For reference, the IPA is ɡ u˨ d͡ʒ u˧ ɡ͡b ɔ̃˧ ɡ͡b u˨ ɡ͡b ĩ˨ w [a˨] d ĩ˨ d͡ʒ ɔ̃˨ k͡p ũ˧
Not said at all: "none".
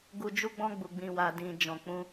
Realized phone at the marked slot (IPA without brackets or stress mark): a˨